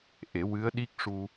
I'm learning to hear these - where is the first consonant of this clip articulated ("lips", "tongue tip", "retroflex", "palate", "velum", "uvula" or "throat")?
throat